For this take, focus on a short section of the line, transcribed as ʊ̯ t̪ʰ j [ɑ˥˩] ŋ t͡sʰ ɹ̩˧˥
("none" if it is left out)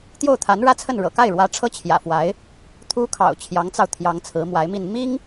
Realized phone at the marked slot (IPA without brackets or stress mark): ɑ˧˥